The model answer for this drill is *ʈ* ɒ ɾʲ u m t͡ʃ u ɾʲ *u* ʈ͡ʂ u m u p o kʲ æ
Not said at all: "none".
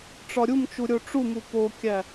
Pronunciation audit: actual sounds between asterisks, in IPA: ʈ͡ʂ, o

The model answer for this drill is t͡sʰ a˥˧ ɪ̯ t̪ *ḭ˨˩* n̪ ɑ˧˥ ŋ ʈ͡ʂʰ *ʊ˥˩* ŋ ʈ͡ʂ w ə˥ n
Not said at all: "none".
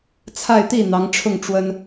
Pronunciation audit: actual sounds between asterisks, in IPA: i˥˩, ʊ˥˩

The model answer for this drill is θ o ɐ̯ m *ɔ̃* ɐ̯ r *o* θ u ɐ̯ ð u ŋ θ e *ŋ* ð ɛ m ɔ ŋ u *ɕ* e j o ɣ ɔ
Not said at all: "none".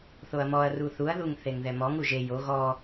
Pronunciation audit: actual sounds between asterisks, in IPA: ɔ, u, ŋ, ʒ

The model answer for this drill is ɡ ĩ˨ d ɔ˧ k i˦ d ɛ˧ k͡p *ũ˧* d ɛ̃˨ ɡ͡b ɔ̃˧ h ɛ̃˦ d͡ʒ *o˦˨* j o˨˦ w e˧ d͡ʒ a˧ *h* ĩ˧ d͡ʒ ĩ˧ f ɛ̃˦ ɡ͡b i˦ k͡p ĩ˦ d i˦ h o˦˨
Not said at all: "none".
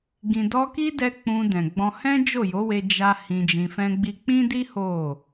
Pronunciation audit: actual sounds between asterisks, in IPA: ũ˧, o˦˨, h

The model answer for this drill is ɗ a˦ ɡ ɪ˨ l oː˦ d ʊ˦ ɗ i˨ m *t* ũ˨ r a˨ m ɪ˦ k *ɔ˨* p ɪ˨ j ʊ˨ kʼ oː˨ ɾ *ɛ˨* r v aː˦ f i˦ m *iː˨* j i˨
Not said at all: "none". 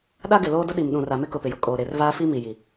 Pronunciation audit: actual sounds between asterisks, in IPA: ɗ, ʊ˨, e˨, i˨

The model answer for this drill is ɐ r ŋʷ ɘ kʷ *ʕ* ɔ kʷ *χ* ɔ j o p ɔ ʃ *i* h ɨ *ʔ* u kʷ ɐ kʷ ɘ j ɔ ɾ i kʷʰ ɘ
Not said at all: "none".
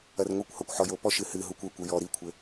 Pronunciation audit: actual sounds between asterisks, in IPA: h, ħ, ɨ, ɦ

